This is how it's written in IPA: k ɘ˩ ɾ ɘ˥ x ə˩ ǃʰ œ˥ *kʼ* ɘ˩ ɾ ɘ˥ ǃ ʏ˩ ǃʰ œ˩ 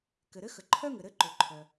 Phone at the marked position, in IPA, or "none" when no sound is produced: ŋ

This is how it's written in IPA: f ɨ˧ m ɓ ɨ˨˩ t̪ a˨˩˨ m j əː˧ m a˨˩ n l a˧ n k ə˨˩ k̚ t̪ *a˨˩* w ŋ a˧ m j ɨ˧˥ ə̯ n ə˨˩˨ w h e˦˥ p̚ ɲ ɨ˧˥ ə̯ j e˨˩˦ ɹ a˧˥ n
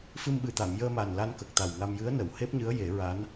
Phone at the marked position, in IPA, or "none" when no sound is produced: a˨˩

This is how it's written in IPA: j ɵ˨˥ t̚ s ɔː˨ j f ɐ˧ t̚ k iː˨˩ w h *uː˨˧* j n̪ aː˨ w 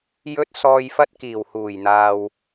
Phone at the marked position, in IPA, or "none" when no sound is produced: uː˨˩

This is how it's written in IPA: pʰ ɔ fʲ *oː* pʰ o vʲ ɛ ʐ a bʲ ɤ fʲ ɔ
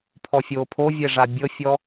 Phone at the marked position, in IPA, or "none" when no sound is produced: oː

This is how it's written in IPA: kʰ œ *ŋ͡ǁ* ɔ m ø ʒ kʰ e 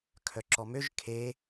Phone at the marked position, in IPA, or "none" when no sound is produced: ǁ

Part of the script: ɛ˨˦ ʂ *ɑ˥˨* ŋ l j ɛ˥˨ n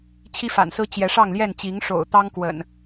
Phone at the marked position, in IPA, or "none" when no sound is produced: ɑ˥˨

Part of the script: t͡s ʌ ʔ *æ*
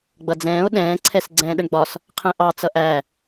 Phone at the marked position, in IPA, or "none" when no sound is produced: æ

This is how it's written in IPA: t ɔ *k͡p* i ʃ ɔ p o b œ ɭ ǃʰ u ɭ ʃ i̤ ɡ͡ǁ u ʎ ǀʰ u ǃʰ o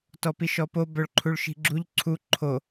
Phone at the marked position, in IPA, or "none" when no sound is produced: p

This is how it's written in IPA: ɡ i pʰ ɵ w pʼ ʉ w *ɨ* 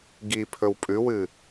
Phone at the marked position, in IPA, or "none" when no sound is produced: ɨ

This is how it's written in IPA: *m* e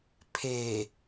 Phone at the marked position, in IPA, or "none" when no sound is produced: pʰ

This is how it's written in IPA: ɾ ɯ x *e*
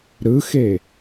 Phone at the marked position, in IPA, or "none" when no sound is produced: e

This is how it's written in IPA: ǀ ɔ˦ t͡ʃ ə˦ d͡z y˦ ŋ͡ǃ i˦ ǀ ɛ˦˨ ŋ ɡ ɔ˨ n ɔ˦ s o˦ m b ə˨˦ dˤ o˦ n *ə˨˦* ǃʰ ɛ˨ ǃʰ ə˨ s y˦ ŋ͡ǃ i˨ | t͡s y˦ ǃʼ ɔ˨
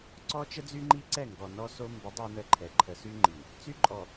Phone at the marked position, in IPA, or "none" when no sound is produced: ə˦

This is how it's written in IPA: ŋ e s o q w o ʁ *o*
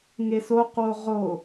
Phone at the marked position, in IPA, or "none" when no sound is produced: o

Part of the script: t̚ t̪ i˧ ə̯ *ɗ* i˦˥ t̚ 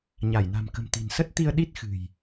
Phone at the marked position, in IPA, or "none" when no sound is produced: ɗ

